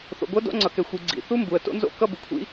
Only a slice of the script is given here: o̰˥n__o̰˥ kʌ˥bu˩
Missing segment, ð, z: z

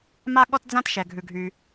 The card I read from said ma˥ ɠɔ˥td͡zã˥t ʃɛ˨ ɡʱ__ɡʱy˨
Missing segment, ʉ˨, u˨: ʉ˨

